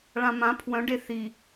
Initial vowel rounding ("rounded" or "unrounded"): unrounded